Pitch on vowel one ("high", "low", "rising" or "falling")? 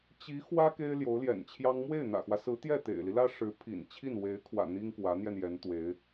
rising